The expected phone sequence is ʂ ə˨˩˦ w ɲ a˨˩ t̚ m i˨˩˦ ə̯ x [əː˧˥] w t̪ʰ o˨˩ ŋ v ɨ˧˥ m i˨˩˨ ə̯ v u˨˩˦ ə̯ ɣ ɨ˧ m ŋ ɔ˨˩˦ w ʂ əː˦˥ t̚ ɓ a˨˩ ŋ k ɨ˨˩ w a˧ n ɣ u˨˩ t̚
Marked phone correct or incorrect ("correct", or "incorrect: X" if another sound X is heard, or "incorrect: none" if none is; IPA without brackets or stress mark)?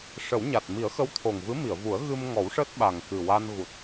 incorrect: ə˧˥